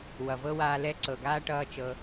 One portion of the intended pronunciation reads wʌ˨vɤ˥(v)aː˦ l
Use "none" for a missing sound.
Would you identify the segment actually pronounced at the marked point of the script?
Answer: w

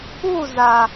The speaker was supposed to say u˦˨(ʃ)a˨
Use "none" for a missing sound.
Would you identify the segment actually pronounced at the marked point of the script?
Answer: z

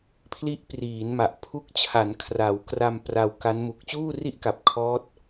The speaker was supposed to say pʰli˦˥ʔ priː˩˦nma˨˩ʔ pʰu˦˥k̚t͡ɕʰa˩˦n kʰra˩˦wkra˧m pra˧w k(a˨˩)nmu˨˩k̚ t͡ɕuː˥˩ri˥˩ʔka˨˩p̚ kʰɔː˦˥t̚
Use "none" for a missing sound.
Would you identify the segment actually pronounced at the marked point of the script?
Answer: a˦˥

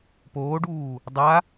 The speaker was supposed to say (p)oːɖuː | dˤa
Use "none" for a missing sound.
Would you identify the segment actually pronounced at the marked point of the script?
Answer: p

